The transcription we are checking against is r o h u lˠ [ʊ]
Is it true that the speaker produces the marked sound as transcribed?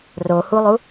no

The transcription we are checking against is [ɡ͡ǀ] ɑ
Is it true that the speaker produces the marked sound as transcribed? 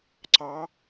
no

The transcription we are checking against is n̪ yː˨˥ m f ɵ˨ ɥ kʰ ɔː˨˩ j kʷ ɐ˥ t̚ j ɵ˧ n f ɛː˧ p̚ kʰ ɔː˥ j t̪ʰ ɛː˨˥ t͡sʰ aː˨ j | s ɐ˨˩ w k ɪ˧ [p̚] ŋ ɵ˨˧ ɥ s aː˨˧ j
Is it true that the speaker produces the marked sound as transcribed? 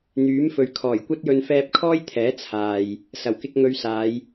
no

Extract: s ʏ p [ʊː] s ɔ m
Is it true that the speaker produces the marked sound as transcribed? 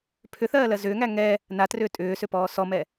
no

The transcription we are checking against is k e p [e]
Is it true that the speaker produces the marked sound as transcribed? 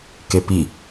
no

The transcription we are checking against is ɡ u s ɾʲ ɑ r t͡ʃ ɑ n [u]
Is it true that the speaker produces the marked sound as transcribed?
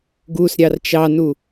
yes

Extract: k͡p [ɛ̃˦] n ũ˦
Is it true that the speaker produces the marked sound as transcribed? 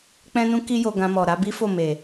yes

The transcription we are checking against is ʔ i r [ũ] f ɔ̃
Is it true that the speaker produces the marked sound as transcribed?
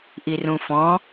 yes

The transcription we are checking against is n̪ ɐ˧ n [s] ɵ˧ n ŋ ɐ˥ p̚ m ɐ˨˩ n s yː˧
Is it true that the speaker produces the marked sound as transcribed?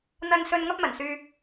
yes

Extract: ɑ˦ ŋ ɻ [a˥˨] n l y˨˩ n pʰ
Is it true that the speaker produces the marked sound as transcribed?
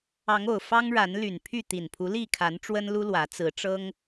no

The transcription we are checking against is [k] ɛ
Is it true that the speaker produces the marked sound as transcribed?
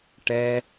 no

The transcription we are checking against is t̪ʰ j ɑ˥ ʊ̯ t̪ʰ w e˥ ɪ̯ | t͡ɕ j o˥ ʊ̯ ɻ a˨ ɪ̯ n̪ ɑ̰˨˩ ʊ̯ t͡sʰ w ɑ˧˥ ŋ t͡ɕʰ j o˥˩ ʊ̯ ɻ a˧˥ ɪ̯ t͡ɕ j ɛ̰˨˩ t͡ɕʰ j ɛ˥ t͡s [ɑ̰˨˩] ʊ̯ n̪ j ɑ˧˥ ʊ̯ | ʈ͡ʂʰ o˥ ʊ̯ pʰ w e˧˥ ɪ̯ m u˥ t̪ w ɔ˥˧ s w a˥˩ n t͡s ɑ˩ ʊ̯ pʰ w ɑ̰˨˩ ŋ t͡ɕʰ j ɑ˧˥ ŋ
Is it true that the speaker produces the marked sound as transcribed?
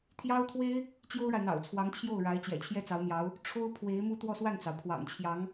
no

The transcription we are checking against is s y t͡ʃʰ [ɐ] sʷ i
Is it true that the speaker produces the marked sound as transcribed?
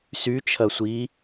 yes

